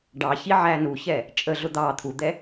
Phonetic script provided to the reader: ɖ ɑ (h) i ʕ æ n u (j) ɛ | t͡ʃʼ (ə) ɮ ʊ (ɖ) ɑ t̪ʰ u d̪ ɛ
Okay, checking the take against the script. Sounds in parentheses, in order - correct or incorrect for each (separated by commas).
incorrect, incorrect, correct, incorrect